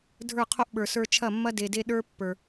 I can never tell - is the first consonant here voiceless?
no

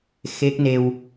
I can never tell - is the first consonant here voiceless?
yes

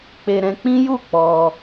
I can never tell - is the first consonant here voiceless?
yes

